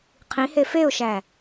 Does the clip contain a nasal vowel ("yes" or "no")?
yes